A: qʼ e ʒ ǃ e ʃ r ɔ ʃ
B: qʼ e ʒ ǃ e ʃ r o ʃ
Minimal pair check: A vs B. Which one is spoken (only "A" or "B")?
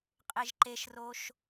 B